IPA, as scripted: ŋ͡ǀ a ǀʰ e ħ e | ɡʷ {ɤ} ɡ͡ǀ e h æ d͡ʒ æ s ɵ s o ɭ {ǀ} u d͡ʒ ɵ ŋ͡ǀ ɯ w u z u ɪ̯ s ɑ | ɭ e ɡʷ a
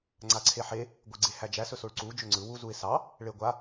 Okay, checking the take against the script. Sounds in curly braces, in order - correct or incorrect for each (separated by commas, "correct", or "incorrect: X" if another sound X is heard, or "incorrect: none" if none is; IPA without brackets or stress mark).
incorrect: ɯ, correct